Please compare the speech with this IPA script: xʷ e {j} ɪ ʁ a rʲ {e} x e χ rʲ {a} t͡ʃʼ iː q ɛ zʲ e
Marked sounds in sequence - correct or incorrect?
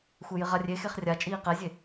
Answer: correct, correct, correct

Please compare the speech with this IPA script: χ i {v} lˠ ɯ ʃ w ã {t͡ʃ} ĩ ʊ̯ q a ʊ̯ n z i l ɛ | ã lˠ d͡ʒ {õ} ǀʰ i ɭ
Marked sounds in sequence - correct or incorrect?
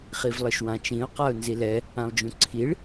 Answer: correct, correct, incorrect: ũ

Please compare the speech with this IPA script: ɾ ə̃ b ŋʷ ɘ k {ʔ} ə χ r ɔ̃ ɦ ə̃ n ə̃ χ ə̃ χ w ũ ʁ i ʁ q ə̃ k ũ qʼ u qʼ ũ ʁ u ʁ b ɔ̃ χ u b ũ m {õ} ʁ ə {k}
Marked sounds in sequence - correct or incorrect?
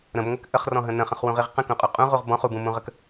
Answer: correct, incorrect: ũ, correct

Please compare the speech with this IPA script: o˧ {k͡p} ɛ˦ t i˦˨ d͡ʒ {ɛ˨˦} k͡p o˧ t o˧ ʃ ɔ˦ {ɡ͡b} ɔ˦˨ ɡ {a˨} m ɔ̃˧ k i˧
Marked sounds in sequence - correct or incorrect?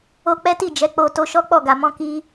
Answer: correct, correct, incorrect: k͡p, correct

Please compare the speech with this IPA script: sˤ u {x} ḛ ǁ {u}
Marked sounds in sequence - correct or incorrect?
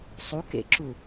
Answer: incorrect: k, correct

